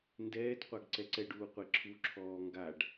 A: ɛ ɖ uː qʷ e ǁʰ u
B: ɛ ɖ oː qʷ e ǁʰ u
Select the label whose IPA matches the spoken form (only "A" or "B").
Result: A